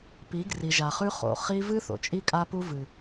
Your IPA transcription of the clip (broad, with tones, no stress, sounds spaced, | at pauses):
p i˨˦ ɡ r i˨ ʒ a˨ χ ʉ˦ χ o̰˨ χ i˦ v ɨ˦ θ o̰˨ t͡ʃʼ i˦ kʼ a˦ p u˦ v ɨ˨